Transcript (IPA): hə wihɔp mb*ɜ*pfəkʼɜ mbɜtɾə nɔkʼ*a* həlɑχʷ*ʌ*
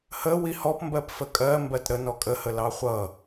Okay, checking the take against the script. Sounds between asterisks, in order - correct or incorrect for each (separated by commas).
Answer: correct, incorrect, correct